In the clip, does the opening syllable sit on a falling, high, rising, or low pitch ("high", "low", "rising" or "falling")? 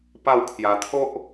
falling